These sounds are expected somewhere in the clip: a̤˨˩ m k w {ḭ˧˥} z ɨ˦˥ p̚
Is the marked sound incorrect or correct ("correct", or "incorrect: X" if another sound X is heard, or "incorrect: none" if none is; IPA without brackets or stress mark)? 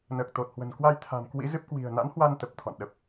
correct